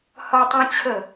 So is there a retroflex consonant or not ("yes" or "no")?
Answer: no